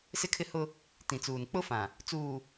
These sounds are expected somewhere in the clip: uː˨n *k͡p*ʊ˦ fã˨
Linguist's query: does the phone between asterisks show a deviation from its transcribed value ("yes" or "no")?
no